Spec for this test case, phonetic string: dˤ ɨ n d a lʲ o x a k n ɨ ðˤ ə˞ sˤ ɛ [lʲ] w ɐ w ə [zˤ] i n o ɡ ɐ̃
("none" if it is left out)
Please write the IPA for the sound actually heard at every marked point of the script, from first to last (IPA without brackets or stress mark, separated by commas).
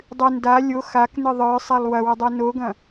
lˠ, dˤ